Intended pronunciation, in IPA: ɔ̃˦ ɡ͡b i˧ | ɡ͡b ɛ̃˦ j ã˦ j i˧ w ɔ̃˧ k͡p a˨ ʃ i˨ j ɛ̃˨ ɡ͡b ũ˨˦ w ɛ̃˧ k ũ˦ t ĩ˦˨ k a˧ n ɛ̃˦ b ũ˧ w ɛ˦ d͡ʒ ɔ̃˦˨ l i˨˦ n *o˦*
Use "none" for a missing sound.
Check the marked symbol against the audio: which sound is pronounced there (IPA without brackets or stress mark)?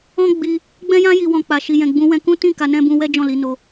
o˧